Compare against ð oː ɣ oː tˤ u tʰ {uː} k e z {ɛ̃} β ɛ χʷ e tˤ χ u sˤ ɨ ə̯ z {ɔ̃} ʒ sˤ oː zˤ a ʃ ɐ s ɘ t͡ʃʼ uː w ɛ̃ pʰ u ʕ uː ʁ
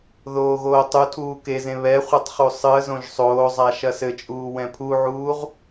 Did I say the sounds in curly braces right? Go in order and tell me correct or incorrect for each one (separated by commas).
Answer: correct, incorrect, incorrect